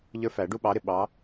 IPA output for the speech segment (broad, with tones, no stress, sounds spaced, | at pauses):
ʎ ə˞˦ f æ˨˩˦ ɖ u˦ ɓ ɑ˨˦ ɾ ɪ˩ ɓ ɑ˨˦